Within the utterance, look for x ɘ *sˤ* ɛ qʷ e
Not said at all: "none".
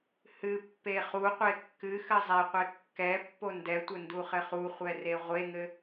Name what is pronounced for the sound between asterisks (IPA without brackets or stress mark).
zˤ